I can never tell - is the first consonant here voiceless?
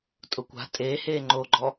yes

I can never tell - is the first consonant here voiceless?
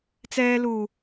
yes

